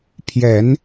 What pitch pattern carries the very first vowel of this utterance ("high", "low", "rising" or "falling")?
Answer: rising